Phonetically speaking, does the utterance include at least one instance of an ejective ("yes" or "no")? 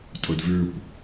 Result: yes